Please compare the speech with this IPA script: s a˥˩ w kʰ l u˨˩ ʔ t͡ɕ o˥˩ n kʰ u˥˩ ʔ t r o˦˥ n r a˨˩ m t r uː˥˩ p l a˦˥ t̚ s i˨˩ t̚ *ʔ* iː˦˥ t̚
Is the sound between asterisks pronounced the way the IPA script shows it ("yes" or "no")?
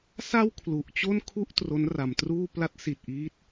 yes